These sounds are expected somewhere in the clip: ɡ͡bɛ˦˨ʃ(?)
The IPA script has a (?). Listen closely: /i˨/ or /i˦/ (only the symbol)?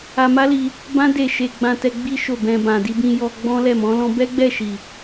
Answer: i˨